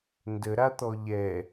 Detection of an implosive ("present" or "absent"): absent